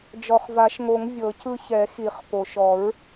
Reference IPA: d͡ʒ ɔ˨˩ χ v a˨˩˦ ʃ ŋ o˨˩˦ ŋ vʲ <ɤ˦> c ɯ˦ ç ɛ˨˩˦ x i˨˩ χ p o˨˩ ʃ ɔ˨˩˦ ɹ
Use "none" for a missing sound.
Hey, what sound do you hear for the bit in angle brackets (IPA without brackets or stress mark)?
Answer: ɤ˨˩˦